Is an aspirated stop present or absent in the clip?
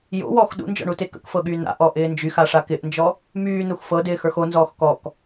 absent